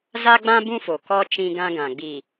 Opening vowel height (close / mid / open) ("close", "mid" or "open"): open